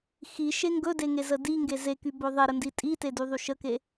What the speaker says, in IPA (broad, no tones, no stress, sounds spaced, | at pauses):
x i ʃ e ŋ ɡ ɵ d e ŋ e z ə d i ŋ ɡ e z e k y b ɵ ðˤ e ɾ ə n d i tʼ i t e d y ðˤ y ʃ ə k e